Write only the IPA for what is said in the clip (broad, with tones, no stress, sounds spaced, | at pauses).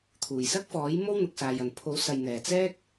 t̪ʰ uː˨˩ j s ɐ˥ k̚ f ɔː˨˥ j m o˥ w n̪ ʊ˨ k̚ s aː˨ j ɐ˨˩ n pʰ o˨˥ w s ɐ˨ j n̪ ɛː˨˩ t͡s ɛː˥ k̚